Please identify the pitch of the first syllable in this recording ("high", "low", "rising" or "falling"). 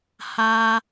high